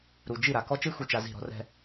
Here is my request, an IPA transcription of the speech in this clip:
ɾ u˨ d͡ʒ i˦˨ ɾ a˨ k ɔ˦ t͡ʃ ɯ˦ x u˨ t͡ʃ a˨ z i̤˦˨ ɾ ɔ̤˦ r ɛ̤˦

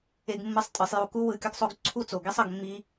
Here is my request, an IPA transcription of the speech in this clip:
e˧ ɡ mː ɯ˧ sˤ tʼ ɯ˨ sˤ j u˧ k u˦ w ɯ˧ kʲ ʌ˦ ɡ sˤ o˦ ɡ ǀʰ u˦ t͡s o˨ ɡ i˦ sˤ ʌ˧ ɡ mː i˦

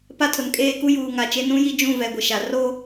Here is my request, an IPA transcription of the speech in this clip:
p a˦ tʰ ʊ˨ n kʼ eː˦˨ k u˦ j uː˨ ŋ a˨ t͡ʃ e˦ n ũ˦ j i˦ d͡ʒ ũ˦˨ v ɛ˨ ɡʷ ɪ˨ ʃ a˨ r oː˦

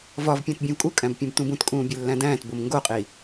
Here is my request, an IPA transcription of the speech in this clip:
v ɒ v pʲ æ̃ t bʲ ũ v kʼ u kʼ æ̃ b pʲ ũ b t ũ b ũ t kʼ ũː bʲ e lː æ̃ d æ̃ː t b o m ŋ ɡ o qʼ i

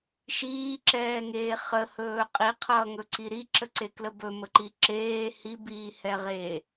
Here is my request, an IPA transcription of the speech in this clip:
ʃ iː ǁ ɛː ŋ eː χ ə h ɵː qʼ i qʰ ʌː ŋ ɵ ǀ i ɾ i ǁ ə ǀ e k l ə b ɵ m ə ǃ i ǁ eː h i b iː h ɛ ʁ eː

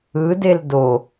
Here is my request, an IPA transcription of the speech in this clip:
ɯ d e l d o

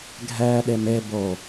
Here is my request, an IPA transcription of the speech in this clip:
ɡʱ ɛ ɗ e m e b o

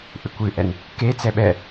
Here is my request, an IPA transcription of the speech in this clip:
ʔ ɨ kʷ ɨ ʔ ɛ n | k e t͡s ɛ ɓ ɛ

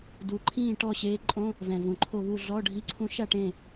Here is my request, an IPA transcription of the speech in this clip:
d u˨˩ ǃʰ ĩː˥˨ ʈ ɔ˥˨ ɕ eː˧˥ ǃʼ õ˧˥˧ | v ɛ̃˨˩ v ũ˨˩ ǃʰ o˥˨ β u˥˨ ɮ ɔ˧˥˧ ɖʱ i˧˥˧ ǀʰ ũ˧˥ ʃ a˥˨ ʈ ẽ˥˨

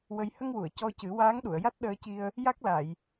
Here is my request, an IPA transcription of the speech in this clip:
w ə˧ j h ə˧ ŋ w u˨˩˨ ə̯ c ɔ˧ c ɨ˨˩˦ w aː˧˥ ŋ ɗ u˨˩˨ ə̯ j a˦˥ t̚ ɗ əː˧ c i˧ ə̯ | j a˦˥ k̚ l a˨˩˨ j

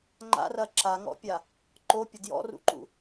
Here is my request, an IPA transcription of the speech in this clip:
ŋ͡ǃ a̰ r ɐ ǁ a ŋ ɔ̰ pʲ a | ǃ o pʲ ə d j ɔ̰ r ṵ ǃ ṵ

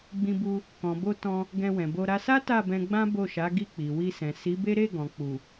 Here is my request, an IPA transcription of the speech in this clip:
ɡ͡b ĩ˧ b u˧ | k ɔ̃˨ b o˧ t ɔ̃˧ | ɡ ɛ̃˧ w ɛ̃˨ b o˧ ɾ a˧ s a˦ t a˦˨ b ɛ̃˧ ɡ͡b ã˦ b o˦˨ ʃ a˨˦ ɡ i˦˨ k͡p i˨ w i˧ s ɛ̃˨ s i˨˦ b e˦ ɾ e˦˨ ɡ ɔ̃˨ k͡p u˨

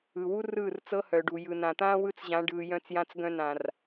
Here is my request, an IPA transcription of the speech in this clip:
ɯ˨ w u˦ r ɯː˦˨ r t͡s ɤ˦ h œ˨ ɖ u˨ j ɯ˨ n ã˨ t̪ ãː˦ w ɯ˦ t͡s ʑ ã˨˦ ɖ ɯː˨ j œ̃˦ t͡s j ã˦ t͡s ɡ œ̃˦ n ã˨ r

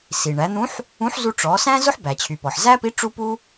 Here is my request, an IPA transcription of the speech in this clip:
s i˩ ɳ æ˩˧ n̪ ũ˧˥ ħ | ũ˧˥ ħ z u˧ ʈ͡ʂ ɔ˩˧ s æ̃˥ z ʊ˥ ħ b æ˩ t͡ɕʰ y˩ p ɔ˩ ħ z æ˥ p i˧˥ ʈ͡ʂ u˥ p u˥

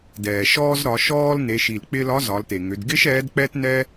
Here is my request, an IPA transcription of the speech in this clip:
d ɛː˩ ʃ ɔː˧ z ɾ ɒ˩˧ ʃ ɔː˧ l n e˩˧ ʃ i˩ l k͡p ɪ˧ l ɒ˧˥ z ɒ˩˧ l t e˩ ŋ ʏ˩˧ d ɡ ɪː˥ ʃ ɛː˧˥ d k͡p ɛː˥ t n ɛ˥

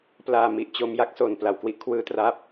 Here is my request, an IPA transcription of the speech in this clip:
p l aː˧ m i˨˩ ʔ t͡ɕ o˧ m j a˥˩ k̚ s o˨˩ n p l a˨˩ w k w i˦˥ ʔ kʰ w ɯː˦˥ t r aː˦˥ p̚

